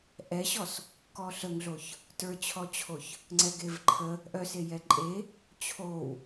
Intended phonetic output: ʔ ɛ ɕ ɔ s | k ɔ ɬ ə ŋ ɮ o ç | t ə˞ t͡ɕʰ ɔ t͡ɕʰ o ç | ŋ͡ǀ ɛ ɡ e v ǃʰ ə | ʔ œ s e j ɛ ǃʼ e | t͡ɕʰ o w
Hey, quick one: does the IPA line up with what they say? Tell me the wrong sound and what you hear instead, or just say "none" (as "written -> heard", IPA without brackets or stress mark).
none